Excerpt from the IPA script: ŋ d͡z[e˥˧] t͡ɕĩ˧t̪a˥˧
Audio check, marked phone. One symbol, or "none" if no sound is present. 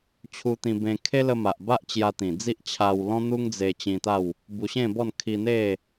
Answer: e˧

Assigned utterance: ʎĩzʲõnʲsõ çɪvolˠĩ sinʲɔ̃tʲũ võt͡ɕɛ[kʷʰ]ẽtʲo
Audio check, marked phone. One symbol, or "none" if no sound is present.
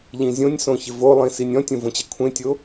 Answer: kʷʰ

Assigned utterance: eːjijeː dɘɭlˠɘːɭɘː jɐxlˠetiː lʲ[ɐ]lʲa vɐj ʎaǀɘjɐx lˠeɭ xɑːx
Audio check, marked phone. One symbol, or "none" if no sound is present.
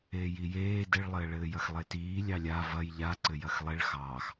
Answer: ɑ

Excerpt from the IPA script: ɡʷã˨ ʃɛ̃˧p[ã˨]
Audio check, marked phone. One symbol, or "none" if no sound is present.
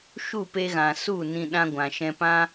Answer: ã˦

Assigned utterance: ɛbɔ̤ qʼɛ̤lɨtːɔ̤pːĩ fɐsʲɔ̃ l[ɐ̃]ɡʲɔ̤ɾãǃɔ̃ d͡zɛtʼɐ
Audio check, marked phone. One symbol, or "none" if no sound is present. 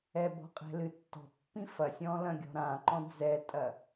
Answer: ɐ̃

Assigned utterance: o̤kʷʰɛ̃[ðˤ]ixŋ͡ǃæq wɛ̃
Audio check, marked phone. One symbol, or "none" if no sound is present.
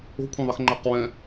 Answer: ðˤ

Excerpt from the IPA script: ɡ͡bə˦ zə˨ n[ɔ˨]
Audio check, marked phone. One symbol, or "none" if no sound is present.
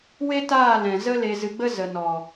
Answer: ɔ˨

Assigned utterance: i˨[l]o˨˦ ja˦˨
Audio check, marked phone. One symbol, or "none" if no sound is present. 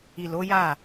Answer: l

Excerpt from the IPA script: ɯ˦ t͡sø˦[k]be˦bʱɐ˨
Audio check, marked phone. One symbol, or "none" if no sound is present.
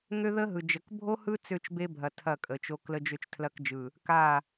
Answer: t͡ʃ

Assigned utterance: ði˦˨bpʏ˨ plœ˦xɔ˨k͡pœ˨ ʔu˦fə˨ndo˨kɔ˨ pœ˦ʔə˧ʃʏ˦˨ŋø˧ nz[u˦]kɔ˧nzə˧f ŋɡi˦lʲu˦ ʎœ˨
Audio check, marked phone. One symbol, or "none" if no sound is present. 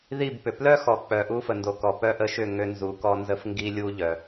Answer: u˨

